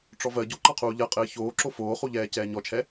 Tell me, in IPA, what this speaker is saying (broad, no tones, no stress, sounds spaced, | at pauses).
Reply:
ʈ͡ʂ ɔ v ɜ ɟ o ǃ ɑ qʰ uː ʎ ɜ qʼ ɘː ç oː ǁ o f oː χ u ʎ ɛː c ɛː ɲ ɔ t͡ʃʰ ɛ